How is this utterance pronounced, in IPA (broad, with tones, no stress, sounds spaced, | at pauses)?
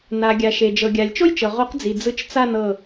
n a˩ ɡʲ a˩ ʃ e˩ d͡ʒ ɤ˩ ɡʲ a˩ lʲ t͡ʃ o˥ j t͡ʃ ɤ˩ ʁ o˨˦ q d͡z i˩ d͡z ɯ˨˦ t͡ʃ t͡s a˥˧ n ɤ˧˩